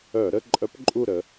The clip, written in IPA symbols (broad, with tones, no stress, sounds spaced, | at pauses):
œ˧˩˧ ɾ ə˧˥˧ ǃʼ œ˧˥ p ǃʼ u˦˨ ɾ ə˩˧